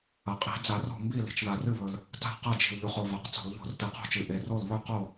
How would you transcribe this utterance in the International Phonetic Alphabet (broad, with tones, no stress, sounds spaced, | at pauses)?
ɐ˩ qʼ i̤˧˩˧ d͡z a˧˩˧ r o̤˥˩ m b i˥˩ l i̤˩ t͡ʃ ð a˩ r ɨ˥˩ β ɵ˩ l | t a̤˥˩ q ɐ˥˩ d͡ʒ i̤˩ l ʎ u˩ χ o˩ v a˩ q t͡s o̤˧˩˧ l ʎ o̤˧˩˧ r t ɨ˩ q o̤˥˩ t͡ʃ ɨ˩ ʔ e˩ r o˥˩ l β ɵ˥˩ q o˥˩